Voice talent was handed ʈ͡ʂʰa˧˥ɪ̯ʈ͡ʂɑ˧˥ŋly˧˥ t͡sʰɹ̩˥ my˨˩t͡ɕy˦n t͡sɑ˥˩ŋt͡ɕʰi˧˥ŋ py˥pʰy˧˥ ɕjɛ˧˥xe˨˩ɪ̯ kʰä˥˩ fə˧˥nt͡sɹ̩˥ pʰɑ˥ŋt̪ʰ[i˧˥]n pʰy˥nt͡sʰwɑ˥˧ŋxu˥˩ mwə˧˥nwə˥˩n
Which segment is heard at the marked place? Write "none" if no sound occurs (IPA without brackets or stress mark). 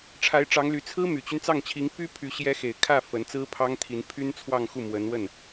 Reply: i˧˥